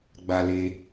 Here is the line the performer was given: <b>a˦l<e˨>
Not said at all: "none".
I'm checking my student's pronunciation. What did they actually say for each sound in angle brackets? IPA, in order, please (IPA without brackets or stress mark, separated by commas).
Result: ɡ͡b, e˦